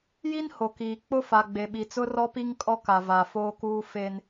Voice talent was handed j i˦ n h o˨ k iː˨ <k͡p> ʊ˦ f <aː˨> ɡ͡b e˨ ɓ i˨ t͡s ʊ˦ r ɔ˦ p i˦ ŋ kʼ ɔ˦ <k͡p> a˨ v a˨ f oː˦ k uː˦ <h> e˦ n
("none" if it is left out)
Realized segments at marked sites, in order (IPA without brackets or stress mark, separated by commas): k͡p, a˨, k, f